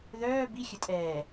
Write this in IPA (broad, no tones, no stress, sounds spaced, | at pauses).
ð œː b i xʲ ə tʼ ɛː